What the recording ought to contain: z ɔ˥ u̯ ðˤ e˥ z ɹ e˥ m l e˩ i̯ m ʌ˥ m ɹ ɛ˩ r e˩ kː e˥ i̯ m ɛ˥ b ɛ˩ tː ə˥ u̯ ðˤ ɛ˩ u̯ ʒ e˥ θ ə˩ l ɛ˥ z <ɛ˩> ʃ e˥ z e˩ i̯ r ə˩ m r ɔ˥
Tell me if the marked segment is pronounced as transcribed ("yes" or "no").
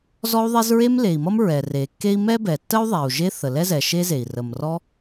yes